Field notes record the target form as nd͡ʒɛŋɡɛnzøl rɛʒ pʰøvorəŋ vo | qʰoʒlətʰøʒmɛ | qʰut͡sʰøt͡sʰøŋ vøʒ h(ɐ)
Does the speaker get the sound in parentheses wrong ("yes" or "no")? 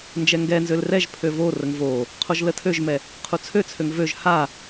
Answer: yes